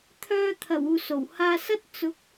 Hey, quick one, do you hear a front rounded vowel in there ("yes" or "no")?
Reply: yes